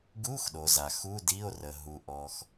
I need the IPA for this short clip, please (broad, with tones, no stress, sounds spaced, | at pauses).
ɡ u˧˥˧ x ɗ o˩ z a˩ x u˧˥˧ d i˧˥˧ o̯ r ə˩ ɦ u˩ ʔ ɔ˩ x